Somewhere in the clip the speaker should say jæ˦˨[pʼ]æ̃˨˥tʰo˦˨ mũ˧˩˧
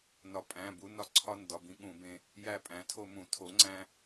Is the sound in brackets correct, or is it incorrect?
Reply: correct